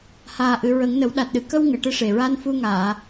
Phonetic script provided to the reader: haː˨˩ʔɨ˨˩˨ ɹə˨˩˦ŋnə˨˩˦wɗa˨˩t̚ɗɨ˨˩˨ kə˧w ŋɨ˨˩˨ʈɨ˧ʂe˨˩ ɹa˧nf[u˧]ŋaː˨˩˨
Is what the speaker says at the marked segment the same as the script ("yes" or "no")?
yes